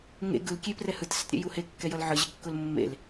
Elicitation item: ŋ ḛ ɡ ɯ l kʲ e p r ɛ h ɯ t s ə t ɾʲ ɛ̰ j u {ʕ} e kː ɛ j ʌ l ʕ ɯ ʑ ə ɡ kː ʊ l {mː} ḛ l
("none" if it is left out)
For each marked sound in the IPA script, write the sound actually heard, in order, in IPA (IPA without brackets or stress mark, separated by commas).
h, mː